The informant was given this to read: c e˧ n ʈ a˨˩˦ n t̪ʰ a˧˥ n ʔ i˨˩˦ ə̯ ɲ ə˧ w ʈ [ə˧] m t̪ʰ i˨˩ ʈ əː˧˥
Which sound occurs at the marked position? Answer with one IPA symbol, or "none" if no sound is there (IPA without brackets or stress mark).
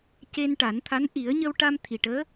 a˧